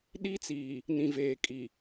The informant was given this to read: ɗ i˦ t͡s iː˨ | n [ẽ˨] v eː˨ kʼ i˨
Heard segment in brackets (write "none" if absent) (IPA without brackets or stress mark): ĩ˨